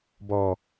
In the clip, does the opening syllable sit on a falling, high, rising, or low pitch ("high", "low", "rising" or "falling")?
low